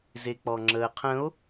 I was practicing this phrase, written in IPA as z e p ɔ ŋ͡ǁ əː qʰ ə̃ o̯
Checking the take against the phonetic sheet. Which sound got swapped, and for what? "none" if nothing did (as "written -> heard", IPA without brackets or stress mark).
p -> k͡p